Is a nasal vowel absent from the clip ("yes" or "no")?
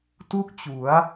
yes